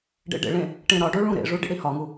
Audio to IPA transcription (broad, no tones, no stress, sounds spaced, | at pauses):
ɖ ḛ ɖ ḛ ɭ ẽ | ʈ ẽ ɾ ɒ ɖ o ɭ ũ ɾ ḛ ʐ u ɖ ḭ ɽ i h ɒ ŋ u